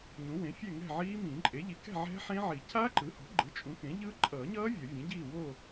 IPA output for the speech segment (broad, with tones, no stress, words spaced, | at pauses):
ɲũ˩˥wẽ˩˥ fʲɛ˥˨ ŋɛ̤˥˨ʕiː˦˥mĩː˨˩˦ ǃʼe˩˥ʎi˩˥kɛ̤˥˨ ʕɛ̤˦˥ħẽ˦˥ʕi˨˩˦ cʰa˦˥ǃɯ˩˥ho̤˩˥ɡ͡ǃɯ˩˥ t͡ʃʼũ˩˥kẽ˩˥ ʎɯ˦˥ ǃʼʌː˨˩˦ɲʌː˦˥ vʲʌ˨˩˦vʲẽ˩˥ɟiː˥˨ wo˥˨